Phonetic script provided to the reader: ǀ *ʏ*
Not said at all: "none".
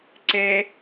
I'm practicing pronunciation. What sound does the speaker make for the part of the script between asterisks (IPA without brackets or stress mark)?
ɛ